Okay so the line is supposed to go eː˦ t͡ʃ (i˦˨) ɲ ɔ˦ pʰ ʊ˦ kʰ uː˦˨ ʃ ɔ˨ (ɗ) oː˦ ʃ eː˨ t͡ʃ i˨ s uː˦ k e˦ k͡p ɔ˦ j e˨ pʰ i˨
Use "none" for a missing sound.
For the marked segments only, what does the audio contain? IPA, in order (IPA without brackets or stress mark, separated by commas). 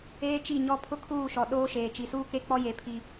i˦˨, ɗ